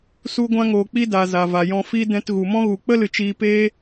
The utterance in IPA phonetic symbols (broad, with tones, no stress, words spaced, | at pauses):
su˦ɡʷã˦ŋoː˧k͡pi˦ da˨ za˨ va˨jɔ̃˧ fi˧ dɛ̃˧tɣu˨mɔ̃˦ɣu˨ k͡pə˦lɨ˨t͡ʃiː˧peː˦